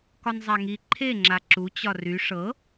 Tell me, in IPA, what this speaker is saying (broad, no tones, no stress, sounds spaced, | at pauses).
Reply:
k ɒ n zˤ a ŋ i ǃʰ e ŋ͡ǁ a ǁ u t͡ɕ ɒ r y ʂ ɤ